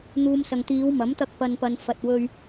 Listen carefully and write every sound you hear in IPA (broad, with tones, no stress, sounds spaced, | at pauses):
n̪ uː˨ m s ɐ˨ ŋ t̪ iː˨˧ w m ɐ˨˥ m t̪ ɐ˧ k̚ p ɐ˨ n p ɐ˨ n f ɐ˨ t̚ w ɵ˧ ɥ